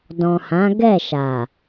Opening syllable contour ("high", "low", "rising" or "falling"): low